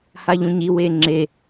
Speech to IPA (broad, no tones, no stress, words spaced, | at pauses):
haʎũɲi weːŋ͡ǁe